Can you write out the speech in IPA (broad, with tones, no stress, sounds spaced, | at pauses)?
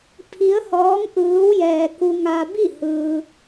pʰ i˧˥ ə̯ h ɔː˧˥ ŋ ʔ ɯː˧˥ w j ɛː˧ k u˧ ŋ a˧ b i˥˨ h ɯː˧